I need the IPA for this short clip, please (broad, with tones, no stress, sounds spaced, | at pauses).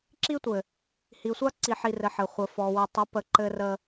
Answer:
ǁ i˦ tʷ ɘ˨ | h i˨ sʷ a˦ ǀ i˨ ħ i˨ r ɘ˨ ħ ɘ˨ χʷ ə˨ f ɔ˨ w ɘ˨ tˤ ə˨˦ p ə˨ ǃ ɘ˦ r ə˦